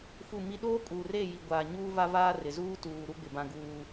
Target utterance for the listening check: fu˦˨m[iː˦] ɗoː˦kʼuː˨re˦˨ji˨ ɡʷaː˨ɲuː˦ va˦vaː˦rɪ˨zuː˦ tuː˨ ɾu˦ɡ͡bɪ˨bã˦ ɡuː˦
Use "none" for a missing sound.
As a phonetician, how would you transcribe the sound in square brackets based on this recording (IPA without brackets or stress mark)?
i˦